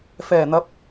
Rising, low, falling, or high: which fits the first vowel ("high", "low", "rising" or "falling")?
low